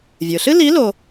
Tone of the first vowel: low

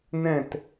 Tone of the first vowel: falling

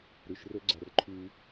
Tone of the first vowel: low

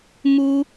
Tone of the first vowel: high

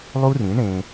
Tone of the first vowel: high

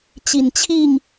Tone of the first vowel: low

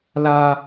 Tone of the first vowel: high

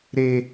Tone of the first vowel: high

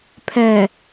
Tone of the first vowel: low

